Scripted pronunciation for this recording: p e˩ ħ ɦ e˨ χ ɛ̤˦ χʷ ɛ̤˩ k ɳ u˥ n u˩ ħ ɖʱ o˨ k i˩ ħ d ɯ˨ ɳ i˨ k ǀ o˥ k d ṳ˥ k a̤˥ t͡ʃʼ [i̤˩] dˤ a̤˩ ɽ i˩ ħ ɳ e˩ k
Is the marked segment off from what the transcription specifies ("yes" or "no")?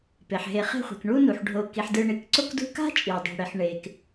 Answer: yes